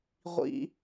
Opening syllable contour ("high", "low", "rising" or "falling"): high